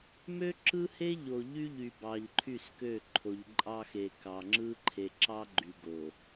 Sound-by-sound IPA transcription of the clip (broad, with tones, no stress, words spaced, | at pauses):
mø˦ǁɯ˦he˦ ʎo˨ʎy˦ ʎy˨ bɑ˨ʎǃʰy˦˨skø˦˨ ǃʰo˨ʎǃʼɑ˦xe˨ kɑ˨ŋ͡ǁɯ˦ ǃʰe˨ǁɑ˦ɡ͡ǃy˨ɡo˨